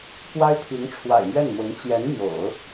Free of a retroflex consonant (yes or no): no